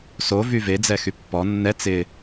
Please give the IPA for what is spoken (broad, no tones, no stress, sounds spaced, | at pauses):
s o v y v e d͡z ɛ x y pː ɔ nː ɛ t͡s ɪ